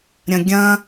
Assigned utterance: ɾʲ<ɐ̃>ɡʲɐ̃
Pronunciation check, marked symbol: correct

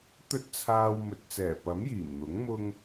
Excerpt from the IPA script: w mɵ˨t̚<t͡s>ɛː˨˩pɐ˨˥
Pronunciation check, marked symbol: correct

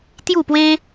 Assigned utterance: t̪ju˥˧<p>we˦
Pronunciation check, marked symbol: correct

